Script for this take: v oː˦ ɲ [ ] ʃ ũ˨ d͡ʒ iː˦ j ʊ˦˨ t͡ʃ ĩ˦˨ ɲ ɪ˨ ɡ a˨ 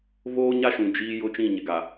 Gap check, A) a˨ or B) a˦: B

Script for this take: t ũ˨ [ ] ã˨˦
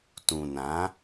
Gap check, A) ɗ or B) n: B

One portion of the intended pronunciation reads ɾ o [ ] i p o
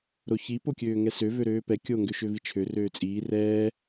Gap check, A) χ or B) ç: B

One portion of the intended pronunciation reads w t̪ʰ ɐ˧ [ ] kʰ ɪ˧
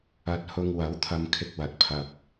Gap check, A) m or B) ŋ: A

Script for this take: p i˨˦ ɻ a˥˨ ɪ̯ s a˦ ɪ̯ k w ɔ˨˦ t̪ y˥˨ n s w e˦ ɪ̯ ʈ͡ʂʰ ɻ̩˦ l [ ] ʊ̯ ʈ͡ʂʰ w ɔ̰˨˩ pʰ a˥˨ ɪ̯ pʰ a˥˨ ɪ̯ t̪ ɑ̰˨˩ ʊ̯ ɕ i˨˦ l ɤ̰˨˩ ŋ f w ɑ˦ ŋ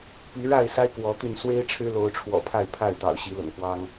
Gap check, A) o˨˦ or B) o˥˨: A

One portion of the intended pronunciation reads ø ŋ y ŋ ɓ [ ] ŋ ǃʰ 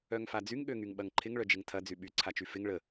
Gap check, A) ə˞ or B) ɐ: B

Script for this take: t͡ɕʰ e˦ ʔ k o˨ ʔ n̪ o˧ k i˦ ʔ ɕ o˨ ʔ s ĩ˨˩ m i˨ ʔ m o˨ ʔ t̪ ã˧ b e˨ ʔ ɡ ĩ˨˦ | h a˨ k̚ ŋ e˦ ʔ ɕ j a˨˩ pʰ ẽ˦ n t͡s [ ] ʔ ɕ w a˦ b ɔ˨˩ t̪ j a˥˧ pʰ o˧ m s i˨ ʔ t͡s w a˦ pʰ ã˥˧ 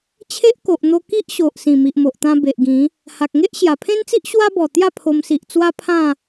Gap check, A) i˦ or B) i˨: A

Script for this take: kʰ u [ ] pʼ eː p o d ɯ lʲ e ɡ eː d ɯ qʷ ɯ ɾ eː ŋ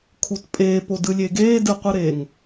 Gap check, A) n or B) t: B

